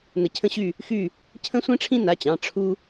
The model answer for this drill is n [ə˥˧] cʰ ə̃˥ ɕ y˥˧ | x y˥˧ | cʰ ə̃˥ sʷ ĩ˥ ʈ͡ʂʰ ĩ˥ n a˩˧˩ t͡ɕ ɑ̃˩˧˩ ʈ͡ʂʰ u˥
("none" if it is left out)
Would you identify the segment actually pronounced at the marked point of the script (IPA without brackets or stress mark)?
ə˧˩